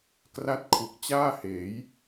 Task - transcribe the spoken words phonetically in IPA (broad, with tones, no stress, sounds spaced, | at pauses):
k r a˥˩ t̚ kʰ u˨˩ k̚ t͡ɕ aː˥˩ h eː˩˦ j